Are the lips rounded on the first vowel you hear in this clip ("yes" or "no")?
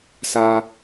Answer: no